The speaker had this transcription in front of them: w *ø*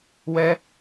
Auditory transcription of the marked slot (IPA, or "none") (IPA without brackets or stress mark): ɛ